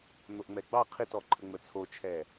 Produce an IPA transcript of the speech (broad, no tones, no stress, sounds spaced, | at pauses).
n̪ o ʔ ŋ͡m ɛ ɡ͡b ɑ qʰ i t ɔ ǃʰ ə ŋ͡m ə t͡sʰ o t͡ʃʰ ɛ